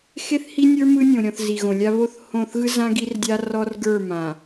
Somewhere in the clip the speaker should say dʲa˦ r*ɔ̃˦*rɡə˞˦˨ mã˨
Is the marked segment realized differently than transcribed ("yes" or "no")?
yes